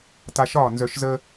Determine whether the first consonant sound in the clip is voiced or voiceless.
voiceless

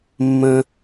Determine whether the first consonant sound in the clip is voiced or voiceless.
voiced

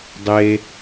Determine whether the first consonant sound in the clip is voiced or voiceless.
voiced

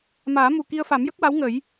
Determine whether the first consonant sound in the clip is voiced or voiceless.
voiced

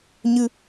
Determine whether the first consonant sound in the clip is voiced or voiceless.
voiced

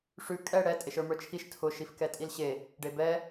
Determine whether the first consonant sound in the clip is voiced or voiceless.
voiceless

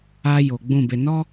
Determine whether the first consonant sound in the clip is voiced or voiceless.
voiced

